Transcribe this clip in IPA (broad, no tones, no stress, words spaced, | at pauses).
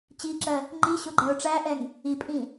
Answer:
t͡ɕiǁɜ | ŋ͡ǃiɕʊ ɡ͡ǃɛʊ̯ʈ͡ʂæʔɛŋ | ipʼĩ